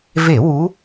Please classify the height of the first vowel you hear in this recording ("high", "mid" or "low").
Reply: mid